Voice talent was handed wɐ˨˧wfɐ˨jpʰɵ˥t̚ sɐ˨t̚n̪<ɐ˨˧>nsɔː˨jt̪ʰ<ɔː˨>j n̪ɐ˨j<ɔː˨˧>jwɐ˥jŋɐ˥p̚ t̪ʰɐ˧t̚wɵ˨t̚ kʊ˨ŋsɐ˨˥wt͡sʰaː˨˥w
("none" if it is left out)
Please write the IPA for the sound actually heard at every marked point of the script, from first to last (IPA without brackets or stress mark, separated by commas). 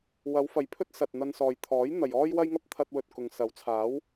ɐ˧, ɔː˨˥, ɔː˥